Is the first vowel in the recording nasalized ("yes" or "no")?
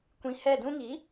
yes